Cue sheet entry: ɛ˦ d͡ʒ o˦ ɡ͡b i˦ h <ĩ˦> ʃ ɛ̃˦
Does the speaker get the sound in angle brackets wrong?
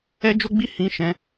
no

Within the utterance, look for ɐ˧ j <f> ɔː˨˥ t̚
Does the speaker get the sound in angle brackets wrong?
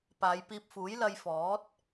no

